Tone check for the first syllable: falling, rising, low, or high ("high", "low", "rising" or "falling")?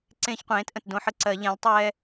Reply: high